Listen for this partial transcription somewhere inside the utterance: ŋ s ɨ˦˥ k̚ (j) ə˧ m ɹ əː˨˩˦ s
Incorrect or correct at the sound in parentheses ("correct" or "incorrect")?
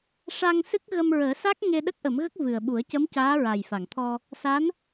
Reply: incorrect